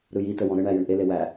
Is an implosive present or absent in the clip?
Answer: absent